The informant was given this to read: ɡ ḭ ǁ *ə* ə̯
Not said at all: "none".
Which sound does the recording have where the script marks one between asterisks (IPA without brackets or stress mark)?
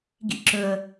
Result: ɵ